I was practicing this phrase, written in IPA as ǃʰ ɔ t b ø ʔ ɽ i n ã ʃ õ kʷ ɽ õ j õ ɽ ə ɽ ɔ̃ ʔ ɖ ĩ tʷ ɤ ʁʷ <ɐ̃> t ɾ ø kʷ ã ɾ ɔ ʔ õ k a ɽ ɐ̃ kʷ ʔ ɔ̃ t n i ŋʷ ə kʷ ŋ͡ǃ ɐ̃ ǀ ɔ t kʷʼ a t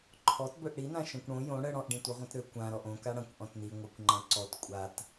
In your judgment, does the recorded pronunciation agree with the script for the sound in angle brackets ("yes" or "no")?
yes